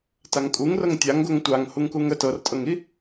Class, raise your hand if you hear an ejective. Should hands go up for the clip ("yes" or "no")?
yes